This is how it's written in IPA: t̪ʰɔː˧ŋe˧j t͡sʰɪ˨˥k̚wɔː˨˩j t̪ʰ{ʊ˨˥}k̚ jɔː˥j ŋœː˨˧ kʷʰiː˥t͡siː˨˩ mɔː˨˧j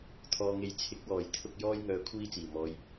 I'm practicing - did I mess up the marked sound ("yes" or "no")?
yes